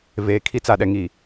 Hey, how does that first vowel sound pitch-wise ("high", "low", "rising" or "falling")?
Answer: low